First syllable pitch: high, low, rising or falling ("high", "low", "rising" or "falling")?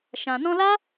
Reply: low